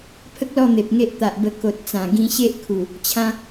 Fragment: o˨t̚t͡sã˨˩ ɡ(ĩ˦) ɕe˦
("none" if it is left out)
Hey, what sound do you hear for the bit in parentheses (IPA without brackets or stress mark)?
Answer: ĩ˦